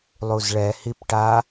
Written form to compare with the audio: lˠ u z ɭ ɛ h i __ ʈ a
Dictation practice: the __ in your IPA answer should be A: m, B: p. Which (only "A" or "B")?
B